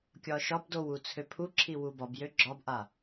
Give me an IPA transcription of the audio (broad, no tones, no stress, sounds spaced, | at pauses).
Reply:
kʲ ɒ ʃ ɒ b d o w u t͡sʰ ø pʰ u ǁʰ i w u b ɒ b j ø ɡ͡ǁ ɒ b ʔ a